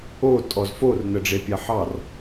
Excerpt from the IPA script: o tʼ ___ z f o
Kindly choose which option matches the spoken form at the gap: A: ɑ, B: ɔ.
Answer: B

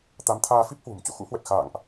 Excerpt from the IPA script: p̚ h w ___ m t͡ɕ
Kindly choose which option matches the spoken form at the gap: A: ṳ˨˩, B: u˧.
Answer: A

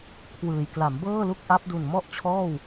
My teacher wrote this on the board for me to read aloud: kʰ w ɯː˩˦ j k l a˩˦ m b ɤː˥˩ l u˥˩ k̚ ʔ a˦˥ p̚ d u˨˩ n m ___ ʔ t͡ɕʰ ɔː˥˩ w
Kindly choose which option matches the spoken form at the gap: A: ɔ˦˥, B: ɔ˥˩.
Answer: B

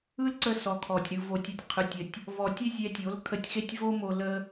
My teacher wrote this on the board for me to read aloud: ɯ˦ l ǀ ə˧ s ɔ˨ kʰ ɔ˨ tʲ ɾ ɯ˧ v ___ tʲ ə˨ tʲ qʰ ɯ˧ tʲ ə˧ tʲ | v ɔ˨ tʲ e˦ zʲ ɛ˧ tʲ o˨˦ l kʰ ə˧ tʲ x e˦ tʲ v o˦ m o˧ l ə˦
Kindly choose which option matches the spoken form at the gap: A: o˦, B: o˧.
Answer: B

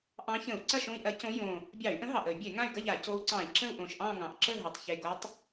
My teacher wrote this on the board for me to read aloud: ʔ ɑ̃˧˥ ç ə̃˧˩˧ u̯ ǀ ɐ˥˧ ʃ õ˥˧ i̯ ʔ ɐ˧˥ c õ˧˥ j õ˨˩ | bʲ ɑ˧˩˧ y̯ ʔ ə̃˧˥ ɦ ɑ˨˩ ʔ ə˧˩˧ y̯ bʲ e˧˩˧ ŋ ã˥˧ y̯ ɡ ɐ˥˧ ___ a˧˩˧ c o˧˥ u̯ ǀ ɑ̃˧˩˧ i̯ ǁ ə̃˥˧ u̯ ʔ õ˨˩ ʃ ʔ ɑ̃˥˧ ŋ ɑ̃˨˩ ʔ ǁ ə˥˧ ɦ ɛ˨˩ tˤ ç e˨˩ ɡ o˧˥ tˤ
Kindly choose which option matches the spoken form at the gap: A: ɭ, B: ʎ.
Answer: B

